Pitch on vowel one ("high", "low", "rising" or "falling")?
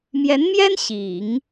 rising